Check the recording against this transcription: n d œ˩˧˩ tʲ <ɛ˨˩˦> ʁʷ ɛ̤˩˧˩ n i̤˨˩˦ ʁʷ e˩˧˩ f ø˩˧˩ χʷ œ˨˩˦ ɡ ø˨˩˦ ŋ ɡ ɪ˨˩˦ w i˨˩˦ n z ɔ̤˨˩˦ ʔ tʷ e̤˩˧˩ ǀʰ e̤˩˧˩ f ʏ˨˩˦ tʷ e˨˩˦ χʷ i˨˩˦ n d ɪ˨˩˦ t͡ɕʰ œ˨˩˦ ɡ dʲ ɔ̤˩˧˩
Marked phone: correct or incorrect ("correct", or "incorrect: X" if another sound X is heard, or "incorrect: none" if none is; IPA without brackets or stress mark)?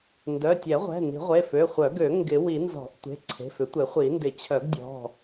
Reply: correct